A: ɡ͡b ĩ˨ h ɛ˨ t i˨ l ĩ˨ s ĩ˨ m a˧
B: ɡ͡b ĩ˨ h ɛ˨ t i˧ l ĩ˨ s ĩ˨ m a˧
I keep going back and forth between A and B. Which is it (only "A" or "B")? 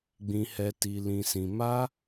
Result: A